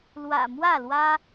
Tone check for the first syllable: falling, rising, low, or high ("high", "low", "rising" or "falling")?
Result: low